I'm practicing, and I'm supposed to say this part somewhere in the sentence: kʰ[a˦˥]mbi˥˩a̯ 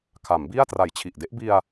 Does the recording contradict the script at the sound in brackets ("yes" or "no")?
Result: yes